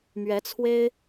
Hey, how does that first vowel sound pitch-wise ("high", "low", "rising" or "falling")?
rising